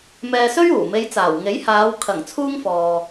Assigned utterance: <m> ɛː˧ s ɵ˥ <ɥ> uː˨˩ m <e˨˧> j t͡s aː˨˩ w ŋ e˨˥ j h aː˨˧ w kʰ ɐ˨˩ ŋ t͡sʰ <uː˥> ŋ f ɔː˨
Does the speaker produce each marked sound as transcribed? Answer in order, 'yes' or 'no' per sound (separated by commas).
yes, yes, yes, yes